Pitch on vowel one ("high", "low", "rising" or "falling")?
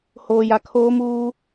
low